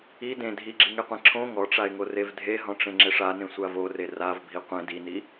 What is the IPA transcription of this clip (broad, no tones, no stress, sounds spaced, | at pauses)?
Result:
i d ẽ dʱ i ɡ͡ǁ i ŋ e qʷ ẽ ǁʰ õ ŋ ɔ ʈ͡ʂ a ɪ̯ ŋ o r e v dʱ e ɦ ɔ̃ ʈ͡ʂ ẽ ŋ͡ǁ e ʂ a n ẽ sʷ a v o r e r a v bʱ i qʷ ẽ d i n i